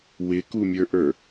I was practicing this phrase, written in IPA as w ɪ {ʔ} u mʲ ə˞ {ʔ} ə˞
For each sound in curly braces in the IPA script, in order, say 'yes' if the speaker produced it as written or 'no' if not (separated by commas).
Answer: no, yes